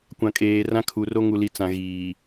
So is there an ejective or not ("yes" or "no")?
yes